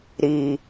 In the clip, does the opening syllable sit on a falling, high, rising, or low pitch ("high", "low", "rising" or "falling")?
low